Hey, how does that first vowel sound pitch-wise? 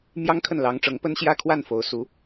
high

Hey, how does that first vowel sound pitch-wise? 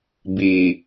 low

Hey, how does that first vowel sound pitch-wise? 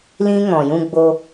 high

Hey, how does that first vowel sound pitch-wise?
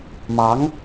rising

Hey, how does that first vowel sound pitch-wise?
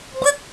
falling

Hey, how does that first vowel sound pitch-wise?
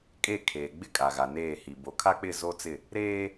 falling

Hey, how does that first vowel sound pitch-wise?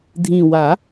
low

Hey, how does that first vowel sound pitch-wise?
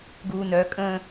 low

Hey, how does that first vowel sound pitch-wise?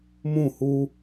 falling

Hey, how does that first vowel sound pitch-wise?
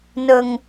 high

